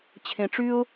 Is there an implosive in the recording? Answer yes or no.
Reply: no